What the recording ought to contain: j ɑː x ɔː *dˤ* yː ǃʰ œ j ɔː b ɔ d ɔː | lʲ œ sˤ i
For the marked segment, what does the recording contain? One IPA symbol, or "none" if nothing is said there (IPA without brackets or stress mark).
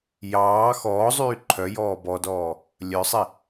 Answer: zˤ